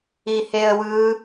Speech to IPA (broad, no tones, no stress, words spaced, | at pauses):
iheə̯wɯ